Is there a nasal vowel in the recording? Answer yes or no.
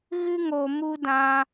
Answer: yes